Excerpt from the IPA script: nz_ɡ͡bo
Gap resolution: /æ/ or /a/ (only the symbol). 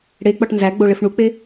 æ